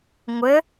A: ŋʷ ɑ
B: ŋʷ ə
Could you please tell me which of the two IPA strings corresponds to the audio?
B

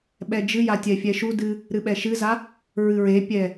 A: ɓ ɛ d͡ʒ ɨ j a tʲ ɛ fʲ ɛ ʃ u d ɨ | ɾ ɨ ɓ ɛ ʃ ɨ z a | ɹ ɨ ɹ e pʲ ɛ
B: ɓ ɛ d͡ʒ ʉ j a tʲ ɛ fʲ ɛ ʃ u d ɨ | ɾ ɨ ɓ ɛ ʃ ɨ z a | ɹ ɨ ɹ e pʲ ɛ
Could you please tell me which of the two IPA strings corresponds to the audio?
A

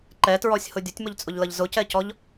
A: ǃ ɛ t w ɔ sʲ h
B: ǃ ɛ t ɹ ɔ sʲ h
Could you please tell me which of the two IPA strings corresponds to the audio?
B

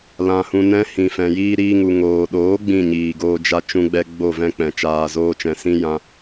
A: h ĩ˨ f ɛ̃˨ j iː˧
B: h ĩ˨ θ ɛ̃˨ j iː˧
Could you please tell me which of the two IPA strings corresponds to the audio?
A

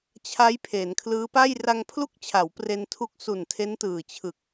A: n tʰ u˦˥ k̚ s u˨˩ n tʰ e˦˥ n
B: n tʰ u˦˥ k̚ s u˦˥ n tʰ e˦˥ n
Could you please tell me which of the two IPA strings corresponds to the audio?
A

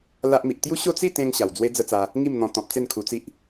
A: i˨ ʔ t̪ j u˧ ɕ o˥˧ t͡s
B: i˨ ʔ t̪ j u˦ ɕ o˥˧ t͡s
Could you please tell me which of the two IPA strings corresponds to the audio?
B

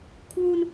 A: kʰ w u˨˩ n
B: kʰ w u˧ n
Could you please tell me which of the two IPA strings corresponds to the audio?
B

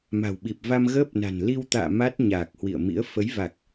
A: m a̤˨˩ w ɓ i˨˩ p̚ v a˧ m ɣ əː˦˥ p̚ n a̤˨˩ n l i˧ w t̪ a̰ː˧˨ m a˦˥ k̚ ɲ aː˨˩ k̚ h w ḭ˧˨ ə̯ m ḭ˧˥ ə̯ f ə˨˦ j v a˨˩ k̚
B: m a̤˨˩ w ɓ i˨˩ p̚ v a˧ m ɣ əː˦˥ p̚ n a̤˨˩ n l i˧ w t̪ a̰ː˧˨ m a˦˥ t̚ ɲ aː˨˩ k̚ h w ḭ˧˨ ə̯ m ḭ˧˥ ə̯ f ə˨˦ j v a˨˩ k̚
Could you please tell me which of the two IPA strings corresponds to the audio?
B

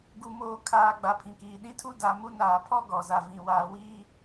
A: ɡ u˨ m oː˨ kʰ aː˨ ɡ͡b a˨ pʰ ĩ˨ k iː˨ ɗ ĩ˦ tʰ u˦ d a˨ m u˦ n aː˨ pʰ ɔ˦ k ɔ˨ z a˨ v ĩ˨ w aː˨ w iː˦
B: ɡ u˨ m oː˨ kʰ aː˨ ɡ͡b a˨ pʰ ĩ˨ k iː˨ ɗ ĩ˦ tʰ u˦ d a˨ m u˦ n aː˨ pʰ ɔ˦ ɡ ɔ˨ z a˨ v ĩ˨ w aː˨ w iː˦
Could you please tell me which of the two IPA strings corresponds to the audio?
B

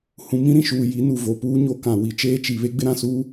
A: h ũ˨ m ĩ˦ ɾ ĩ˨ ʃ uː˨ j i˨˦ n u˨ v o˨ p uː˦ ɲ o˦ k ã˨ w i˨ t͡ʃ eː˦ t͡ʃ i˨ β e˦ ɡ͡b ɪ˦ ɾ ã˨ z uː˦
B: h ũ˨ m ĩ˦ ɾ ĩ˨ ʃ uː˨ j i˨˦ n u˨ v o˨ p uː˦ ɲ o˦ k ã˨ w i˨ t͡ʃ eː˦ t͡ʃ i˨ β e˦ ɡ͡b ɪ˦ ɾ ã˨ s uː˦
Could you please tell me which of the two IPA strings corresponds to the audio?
B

